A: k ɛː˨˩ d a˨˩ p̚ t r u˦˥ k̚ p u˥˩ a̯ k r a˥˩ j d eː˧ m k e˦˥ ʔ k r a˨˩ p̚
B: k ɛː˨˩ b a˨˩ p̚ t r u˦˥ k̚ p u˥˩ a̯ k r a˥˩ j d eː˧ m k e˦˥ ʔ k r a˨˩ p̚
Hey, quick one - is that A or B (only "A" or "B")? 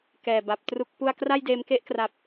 B